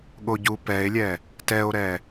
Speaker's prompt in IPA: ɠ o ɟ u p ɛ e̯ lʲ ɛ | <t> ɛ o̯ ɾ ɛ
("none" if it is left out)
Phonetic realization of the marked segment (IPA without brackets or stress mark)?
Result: t